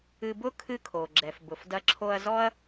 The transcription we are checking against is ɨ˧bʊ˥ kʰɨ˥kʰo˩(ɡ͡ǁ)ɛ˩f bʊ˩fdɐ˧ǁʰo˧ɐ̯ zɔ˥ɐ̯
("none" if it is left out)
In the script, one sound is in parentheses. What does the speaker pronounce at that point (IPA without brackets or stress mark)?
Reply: ɡ͡ǁ